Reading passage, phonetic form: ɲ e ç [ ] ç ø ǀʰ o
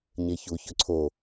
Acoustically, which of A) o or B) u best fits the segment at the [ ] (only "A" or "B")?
B